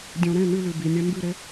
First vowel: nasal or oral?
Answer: nasal